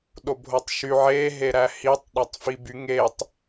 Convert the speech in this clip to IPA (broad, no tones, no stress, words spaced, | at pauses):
ɗobʱotˤʃy ʕe ɦeɾæhitˤ ɗætˤfiby ŋetˤ